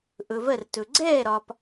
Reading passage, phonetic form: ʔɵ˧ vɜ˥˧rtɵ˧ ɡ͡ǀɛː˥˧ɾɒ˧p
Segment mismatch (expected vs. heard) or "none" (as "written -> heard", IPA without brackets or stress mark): none